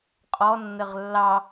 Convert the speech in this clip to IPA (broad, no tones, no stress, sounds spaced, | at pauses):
qʼ ɔ nː ə ʁ lː ɑ